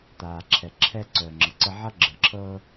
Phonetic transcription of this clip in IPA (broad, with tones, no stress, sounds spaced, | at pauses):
t̪ aː˨ ǁʰ ɛ˨ ǁʰ ɛ˧ ǀ œː˨ ŋ͡ǁ ə˨ ǀ ə˧ ʕ ʌ˦ ɡ͡ǁ əː˨ ǁʰ ɤː˧